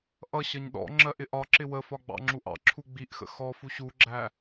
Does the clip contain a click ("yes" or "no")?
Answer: yes